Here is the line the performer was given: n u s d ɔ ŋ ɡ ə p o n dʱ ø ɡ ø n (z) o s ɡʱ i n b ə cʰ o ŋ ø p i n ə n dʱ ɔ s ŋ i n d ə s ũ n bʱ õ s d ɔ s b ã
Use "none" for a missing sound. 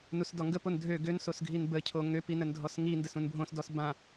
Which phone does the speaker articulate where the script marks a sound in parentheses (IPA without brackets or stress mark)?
s